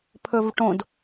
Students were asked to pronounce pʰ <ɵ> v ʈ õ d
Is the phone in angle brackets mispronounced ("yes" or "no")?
no